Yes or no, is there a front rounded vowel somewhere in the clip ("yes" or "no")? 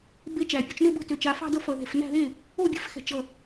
yes